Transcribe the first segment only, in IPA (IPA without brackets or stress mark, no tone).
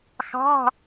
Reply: x